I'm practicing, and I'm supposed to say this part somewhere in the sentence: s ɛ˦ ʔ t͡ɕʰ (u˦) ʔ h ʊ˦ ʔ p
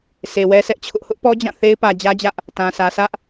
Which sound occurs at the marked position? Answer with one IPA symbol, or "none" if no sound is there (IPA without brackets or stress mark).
ʊ˦